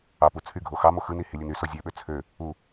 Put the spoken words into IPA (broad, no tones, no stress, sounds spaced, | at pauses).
ɑ p u t͡sʰ y ɡʱ o x ɑ m o x ɯ n i h i lʲ ɯ n y s o zʲ ø ɓ ø t͡sʰ ø | u